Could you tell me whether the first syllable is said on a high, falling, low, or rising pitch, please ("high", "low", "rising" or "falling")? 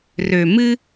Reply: low